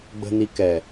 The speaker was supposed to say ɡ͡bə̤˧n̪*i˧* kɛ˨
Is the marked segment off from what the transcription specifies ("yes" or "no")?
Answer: no